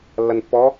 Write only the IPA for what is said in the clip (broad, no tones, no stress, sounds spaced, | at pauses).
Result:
lː ɐ n pː ɔ